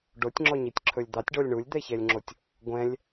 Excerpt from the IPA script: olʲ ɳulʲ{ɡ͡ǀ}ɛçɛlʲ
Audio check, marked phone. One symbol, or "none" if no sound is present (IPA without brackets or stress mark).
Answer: d̪